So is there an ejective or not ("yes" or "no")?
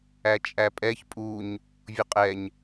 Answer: yes